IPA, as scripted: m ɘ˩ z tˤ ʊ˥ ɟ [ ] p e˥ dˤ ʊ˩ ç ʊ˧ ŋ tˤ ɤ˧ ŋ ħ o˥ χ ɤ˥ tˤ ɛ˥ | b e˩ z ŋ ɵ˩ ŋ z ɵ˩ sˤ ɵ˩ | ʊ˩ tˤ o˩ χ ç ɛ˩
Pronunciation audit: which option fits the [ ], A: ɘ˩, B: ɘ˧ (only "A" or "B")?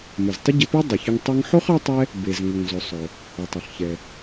B